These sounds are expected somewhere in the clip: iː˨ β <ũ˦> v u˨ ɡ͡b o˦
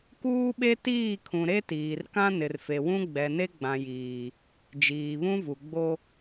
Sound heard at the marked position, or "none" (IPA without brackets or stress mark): ũ˦